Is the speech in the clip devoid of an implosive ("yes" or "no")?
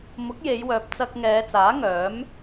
yes